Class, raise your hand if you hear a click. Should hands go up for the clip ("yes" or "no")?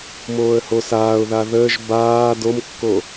no